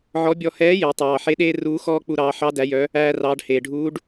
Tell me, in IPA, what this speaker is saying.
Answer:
ʕɔ˧˥ bʲɔ˧ hɛː˧˥je˩˧ tˤɑː˩ħe˧˥ ɗeː˥ruː˧˥xɔː˥k͡pu˧ ɾɑː˩˧ħɑ˧˥ dæ˩˧jœ˩˧ | æː˧rɑː˩˧ɖ heː˩ ɖʱuː˧˥ɖ

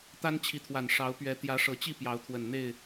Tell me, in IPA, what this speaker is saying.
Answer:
t̪a˦nt͡ɕʰi˨˦t̪ʰwa˨˩n ʂɑ˨˦ʊ̯pɥɛ˨˦ t̪jä˨˦ʂɤ˨˩t͡ɕi˥˨ pjɑ˨˦ʊ̯t̪ʰwə˨˩nn̪e˥˨ɪ̯

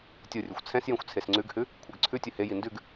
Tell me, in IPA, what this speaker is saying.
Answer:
tʲorʲɵxʷ t͡sʰɛ̃sjẽxʷ t͡sʰesŋ͡ǀʉɡhʉ | kʷʰɛɡǀʰʉtʲɵ heji ndʉɡ

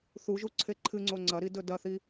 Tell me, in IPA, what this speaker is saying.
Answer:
θuʒuǀʰe ǃʰɨŋ͡ǀo ŋ͡ǀɐɾidɵ dɐθi

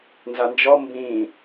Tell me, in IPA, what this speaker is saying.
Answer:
nzand͡ʒɔ mbĩ

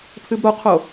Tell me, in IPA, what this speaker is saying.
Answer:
pʰɨbɾoqʰo

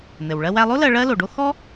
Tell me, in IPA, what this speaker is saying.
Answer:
n̪ɘ˩w ɭɜ˧wæ˧lˠo˥lɜ˧ ɭɜ˥lo˩ɖo˥ xɔ˥

